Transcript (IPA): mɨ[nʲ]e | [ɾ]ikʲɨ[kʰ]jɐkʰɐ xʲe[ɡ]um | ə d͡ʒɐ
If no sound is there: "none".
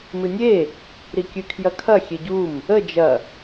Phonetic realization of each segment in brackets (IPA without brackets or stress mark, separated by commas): nʲ, ɾ, kʰ, ɟ